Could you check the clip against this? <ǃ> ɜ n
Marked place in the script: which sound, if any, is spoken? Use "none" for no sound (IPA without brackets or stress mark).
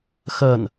x